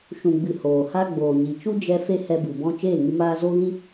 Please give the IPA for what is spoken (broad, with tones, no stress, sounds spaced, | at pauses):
ʃ ũ˨ ɡ͡b ɨ˨ h oː˨ h a˧ ɡ͡b oː˨ ɲ i˨ t͡ʃ u˦ d͡ʒ ɛ˧ f e˦ h ɛ˧ b ɨ˨ b ɔ̃˧ t͡ʃ eː˦˨ ŋ ɨ˧ m aː˧ z o˦ ɣ ĩ˦